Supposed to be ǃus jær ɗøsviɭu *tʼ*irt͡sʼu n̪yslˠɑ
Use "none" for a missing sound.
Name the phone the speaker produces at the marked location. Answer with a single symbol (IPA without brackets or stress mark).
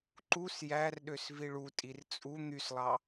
tʼ